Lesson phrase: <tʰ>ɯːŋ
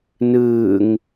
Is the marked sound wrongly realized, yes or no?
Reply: yes